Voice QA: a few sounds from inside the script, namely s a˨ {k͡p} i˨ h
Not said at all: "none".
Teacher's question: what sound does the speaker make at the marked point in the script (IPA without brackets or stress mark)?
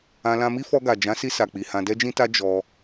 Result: k͡p